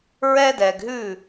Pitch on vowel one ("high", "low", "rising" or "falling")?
high